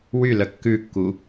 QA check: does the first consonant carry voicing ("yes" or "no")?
yes